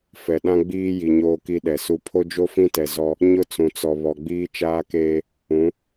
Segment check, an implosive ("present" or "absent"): present